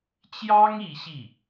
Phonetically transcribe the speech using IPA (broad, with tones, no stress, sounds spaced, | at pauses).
t͡ɕ j ɑ˥ ŋ i˧˥ ɕ i˥˩